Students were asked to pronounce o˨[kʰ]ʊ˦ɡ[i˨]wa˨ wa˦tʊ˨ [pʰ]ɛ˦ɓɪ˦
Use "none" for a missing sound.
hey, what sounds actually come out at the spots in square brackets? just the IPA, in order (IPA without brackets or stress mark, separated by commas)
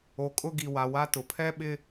kʼ, i˨, pʰ